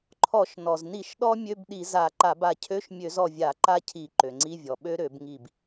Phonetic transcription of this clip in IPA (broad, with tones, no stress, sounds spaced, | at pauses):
ǃʰ ɔ˧˩˧ ʃ n ɔ˩ z n i˧˩˧ ʃ ɗ ɔ˦˥ mʲ ø˧˥˧ b ɗ i˧˩˧ z a˧˩˧ ǃ a˧˩˧ b a˧˩ cʰ ø˧˥˧ ʃ mʲ ø˧˩˧ z ɔ˧˩ vʲ a˧˩˧ ǃ a˦˥ cʰ i˧˩˧ ǃ ø˩ ŋ͡ǀ i˧˥˧ vʲ ɔ˩ ɓ ø˦˥ ɾ ø˧˩˧ b ŋ i˧˩ b